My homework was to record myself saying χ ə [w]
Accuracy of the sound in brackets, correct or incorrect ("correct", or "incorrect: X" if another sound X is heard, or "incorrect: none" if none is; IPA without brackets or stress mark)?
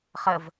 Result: incorrect: v